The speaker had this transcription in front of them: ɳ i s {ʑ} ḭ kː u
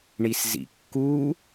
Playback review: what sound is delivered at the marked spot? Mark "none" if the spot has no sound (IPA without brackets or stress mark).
z